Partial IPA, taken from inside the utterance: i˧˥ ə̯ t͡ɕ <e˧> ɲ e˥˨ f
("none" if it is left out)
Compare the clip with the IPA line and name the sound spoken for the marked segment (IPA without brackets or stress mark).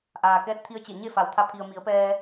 e˧˩